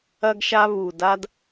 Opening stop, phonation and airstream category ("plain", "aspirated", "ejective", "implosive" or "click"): plain